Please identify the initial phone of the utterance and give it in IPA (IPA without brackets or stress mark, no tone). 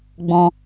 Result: ɡ͡b